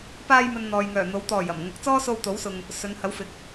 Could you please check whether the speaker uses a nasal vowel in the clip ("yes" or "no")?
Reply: no